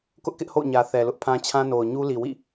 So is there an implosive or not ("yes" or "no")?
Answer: no